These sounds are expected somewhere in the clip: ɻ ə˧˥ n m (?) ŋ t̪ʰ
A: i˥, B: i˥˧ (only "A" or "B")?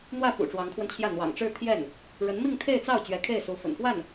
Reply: B